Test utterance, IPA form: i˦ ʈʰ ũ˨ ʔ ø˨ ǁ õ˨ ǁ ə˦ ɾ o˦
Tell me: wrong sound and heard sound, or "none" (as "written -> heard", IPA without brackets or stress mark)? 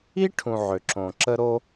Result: ʔ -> ʕ